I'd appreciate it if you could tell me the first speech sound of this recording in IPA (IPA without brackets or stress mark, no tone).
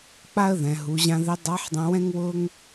k͡p